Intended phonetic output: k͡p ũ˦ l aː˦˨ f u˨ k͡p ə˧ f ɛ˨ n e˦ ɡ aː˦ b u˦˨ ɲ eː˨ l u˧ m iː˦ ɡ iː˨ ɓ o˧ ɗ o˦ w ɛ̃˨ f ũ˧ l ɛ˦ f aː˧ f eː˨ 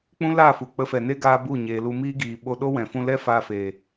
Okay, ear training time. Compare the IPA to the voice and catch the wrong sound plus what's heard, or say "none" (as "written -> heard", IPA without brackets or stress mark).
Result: none